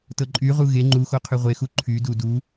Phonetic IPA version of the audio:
tɤǃʼy ʁuɣe ŋ͡ǃuxo qʰyʁʷexu ǃʰydu du

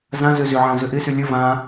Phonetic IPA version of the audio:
zãzø zʏʕã zʏʔɪsy lʲə vã

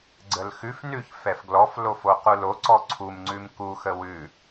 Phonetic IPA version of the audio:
ɡ͡ǀəlxʉf nʉç fɛfɡlɔf lofoqulo ǀɔǀʰum ŋ͡ǀʉmku xəwʉ

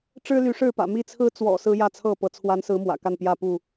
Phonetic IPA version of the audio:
ʈ͡ʂɻ̩˦ly˨˦ʂɻ̩˥˨pä̰˨˩ mi˥˨t͡sʰɹ̩˦ t͡swɔ̰˨˩ sɹ̩˦jä˥˨t͡sʰɤ˥˨pɤ˨˦ t͡sʰwa˨˦nsɹ̩˨˦ mwä̰˨˩ka˥˨npjä˥˨ pu˥˨

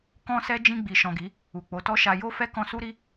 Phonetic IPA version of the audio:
kɔ̃˧sɛ˧ d͡ʒĩ˧ɡ͡bi˨ ʃɔ̃˨ɡi˨˦ | u˨k͡po˨˦tɔ˦ʃa˧ jo˦fɛ˦ kɔ̃˧su˦ɾi˦

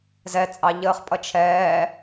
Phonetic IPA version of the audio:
zɛt͡sʼɑ ʎəːχpʼʌt͡ʃʰɛː

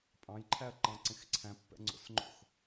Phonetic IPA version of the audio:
pʼɑ̃jǃʰæɐ̯ǃɑ̃ǀẽx ǀʰæ̃pːɛ̰ŋ͡ǀo̰sŋ͡ǃo̰x

